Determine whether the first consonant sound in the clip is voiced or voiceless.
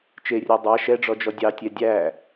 voiceless